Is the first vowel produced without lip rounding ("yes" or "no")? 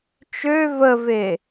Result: no